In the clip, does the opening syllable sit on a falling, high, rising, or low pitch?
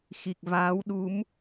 low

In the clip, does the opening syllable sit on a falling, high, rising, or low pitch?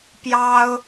high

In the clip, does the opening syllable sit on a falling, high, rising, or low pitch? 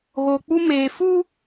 low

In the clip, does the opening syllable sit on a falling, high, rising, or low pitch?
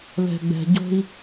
low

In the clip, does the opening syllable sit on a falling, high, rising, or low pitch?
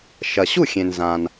low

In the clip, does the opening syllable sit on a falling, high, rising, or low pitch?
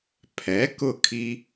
rising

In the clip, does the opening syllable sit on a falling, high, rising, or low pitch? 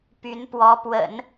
rising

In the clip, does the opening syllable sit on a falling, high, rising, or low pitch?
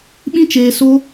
high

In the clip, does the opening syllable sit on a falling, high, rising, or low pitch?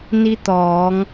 rising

